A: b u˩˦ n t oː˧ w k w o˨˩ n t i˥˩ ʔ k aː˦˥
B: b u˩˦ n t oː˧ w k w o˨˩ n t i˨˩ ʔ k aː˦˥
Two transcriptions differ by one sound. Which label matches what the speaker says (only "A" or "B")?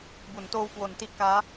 A